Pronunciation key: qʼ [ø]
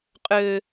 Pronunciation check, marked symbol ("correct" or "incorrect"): correct